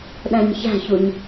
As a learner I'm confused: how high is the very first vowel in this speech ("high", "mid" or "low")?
low